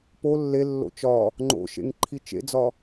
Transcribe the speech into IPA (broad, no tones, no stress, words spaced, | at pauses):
po lːelːo̰ t͡ʃɒ | ŋ͡ǃo̰ʃḛŋǃʰi t͡ʃḛd͡zɒ